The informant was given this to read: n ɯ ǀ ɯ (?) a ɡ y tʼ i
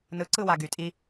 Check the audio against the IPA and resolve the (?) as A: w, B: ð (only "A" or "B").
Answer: A